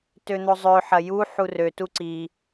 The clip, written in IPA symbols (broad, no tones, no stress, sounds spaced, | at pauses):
t ø n̪ o zˤ ø ħ ɐ j u ħ u r ø t u ǀ i